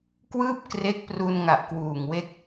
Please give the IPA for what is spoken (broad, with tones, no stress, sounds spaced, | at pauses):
k w ɯː˥˩ p̚ k r e˦˥ k̚ p r u˧ n ŋ a˨˩ ʔ k w uː˨˩ ŋ w e˦˥ k̚